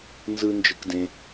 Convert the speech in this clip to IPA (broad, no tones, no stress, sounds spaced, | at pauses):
n z ɯ n d͡ʒ ɯ k d ẽ